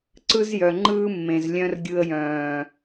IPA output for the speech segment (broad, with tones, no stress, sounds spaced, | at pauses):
ǀ ɯ˦ z j œ˨ ŋ͡ǃ ɯː˦ mː ẽ˨ z lʲ œ̃˦ r ɡʲ ɯ˧ ə̯ j œ̃ː˨